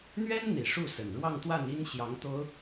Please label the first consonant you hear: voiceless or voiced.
voiced